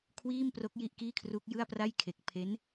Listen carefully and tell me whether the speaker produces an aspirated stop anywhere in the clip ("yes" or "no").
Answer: yes